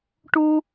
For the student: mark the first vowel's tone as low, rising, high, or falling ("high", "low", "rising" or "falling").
high